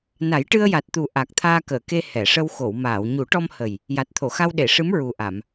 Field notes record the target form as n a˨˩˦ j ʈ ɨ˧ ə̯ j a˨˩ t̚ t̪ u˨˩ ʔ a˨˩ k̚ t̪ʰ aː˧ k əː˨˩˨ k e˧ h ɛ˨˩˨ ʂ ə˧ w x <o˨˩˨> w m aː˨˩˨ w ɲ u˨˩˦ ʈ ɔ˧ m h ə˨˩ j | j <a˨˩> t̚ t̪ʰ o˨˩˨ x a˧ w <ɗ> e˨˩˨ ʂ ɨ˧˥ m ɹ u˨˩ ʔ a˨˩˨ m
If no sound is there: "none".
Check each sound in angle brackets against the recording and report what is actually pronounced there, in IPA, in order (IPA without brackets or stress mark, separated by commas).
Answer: o˨˩˨, a˨˩, ɗ